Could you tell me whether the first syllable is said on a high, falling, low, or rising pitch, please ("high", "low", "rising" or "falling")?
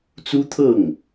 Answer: high